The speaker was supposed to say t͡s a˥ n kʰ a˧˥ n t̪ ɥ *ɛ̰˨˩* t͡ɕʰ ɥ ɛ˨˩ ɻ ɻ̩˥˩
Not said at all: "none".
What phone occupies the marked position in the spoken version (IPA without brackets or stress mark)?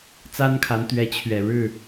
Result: ɛ˧˥